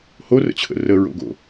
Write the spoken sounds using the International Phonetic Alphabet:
h o r ə̰ t͡ɕʰ ə̰ r ə ɹ o̰ ɡ o̰

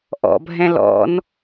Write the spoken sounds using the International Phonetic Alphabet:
ʔ ɔ̰ bʱ ɛ̃ l ɔ̰ n

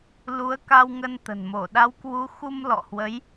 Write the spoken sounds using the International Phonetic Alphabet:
l u˨˦ ə̯ k a˧ w ŋ ə˧ n t̪ ə̤˨˩ n m o˧˩ ɗ a˨˦ w k w u˨˦ x u˧ m l ɔ̰˧˨ h w ə˨˦ j

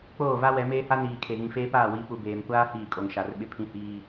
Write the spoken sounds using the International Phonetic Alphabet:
k͡p oː˦˨ v a˦ w ɛ˨˦ m eː˦ h a˦ n iː˨ kʰ e˨ ɣ ĩ˨ f eː˦ p aː˦˨ w i˨˦ p u˨ b eː˨ m kʷ aː˦ h iː˦˨ kʼ o˨ ŋ ʃ a˨˦ r ɓ ɪ˦ pʰ ĩ˦ h iː˦

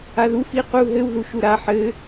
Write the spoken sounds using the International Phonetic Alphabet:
a ð u f i q u ɦ ɘ w ð u ʃ u ɾ a ħ ɘ

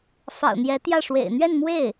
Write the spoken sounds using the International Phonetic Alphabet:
f ɑ̰˨˩ ʊ̯ n̪ j ɛ˧˥ t̪ j ä˥˩ ʂ w ḛ˨˩ ɪ̯ n̪ ɥ ɛ˥˧ n m w e˥˩ ɪ̯

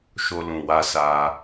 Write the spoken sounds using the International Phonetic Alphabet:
ʃ o˧ l ũ˨ w a˧ s a˧

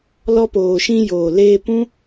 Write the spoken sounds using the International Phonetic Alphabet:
l ɔ˧ p oː˨ ʃ ĩ˧ j oː˨ l eː˧ p ũ˦

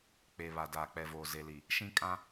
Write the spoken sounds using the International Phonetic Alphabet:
k͡p e˨ β a˨ d aː˨ k͡p ɛ˨ v oː˨ z e˨ l i˨ | ʃ ĩ˦ kʼ ã˦

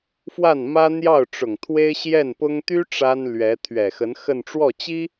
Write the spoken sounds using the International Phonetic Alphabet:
f w a˥˩ n m ä˥ n̪ j ɑ˥˩ ʊ̯ ʈ͡ʂ ʊ˨˩ ŋ t̪ʰ w e˥ ɪ̯ ɕ j ɛ˥˩ n p ʊ˥ ŋ t̪ y˥ ʈ͡ʂ a˥ n l ɥ ɛ˧˥ t̪ʰ ɥ ɛ˨˩ x ə˧˥ n x ə˥˧ n ʈ͡ʂ w ɔ˥˩ t͡ɕ i˥

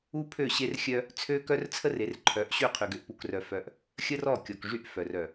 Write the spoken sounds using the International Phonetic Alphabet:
u˦ pʰ ø˦˨ ɕ e˦ r xʲ œ˦ | t͡sʰ ø˦ k œ˦ r t͡sʰ ə˦ r e˨˦ r ǃʰ œ˨˦ ʔ ɕ y˦˨ qʰ y˨ ɡ ø˨ ʔ p u˨ k r œ˨ f œ˨ ʔ | xʲ ə˦ r ɔ˦˨ kʲ ɔ˨ k ʐ y˦˨ ʔ f œ˨ r œ˨

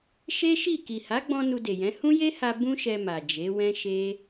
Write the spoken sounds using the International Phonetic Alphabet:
ʃ e˦ ʃ i˦˨ k i˨ h a˨˦ ɡ͡b ɔ̃˧ n u˧ d e˨ j ɛ̃˨˦ h ũ˦ j e˦ h a˧ b ũ˦ ʃ ɛ˧ m a˨ d͡ʒ e˨˦ w ɛ̃˦ ʃ e˦

